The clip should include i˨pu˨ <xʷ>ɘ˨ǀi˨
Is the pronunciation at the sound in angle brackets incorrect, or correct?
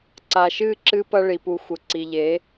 correct